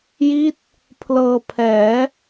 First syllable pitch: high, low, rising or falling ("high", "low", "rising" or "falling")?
falling